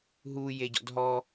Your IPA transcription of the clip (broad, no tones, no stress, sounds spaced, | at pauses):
ɦ u j e ɟ ɔ̰ d ɦ ɔ